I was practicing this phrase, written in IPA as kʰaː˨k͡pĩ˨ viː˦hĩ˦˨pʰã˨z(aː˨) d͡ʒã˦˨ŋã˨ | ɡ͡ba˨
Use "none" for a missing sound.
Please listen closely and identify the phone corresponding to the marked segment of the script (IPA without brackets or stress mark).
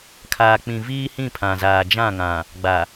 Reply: aː˨